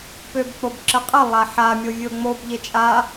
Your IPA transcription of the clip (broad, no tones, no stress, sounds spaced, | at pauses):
p ø b k͡p o b ǁ ə qʼ ə lˠ a ħ a mʲ o vʲ o ŋ͡m o b ʎ e t͡ʃʼ a